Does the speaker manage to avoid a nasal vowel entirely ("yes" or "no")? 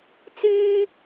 yes